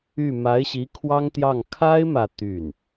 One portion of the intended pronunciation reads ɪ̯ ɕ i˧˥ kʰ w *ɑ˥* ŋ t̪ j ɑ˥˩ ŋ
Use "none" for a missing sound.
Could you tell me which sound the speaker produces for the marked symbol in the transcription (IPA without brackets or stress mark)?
ɑ˥